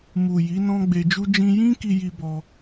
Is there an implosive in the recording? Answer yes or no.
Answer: no